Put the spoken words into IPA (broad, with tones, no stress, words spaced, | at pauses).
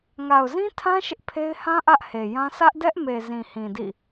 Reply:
ŋa˨ʊ̯zĩ˦tʰã˦ ʃɪ˦ʔpʰe˦ɪ̯ hã˦ ʔä˦ʔhe˨jã˦ sä˦ʔdɛ˦ʔme˨ zĩ˨hĩ˨dḭ˦˨